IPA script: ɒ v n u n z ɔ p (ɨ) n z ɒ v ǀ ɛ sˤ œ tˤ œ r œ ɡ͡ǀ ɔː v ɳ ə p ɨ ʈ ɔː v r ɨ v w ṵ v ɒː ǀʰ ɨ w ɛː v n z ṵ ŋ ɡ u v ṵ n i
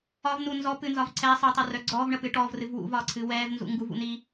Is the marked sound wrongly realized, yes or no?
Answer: no